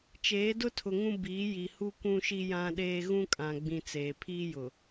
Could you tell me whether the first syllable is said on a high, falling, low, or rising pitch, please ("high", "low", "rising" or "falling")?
rising